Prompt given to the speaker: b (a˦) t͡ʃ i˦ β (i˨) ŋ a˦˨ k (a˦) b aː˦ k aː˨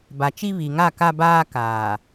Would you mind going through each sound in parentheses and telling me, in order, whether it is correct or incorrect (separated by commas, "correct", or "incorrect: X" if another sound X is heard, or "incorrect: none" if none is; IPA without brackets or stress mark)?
incorrect: a˨, correct, correct